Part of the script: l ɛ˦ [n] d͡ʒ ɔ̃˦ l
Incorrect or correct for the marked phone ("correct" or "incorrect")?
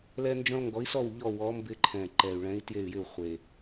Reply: correct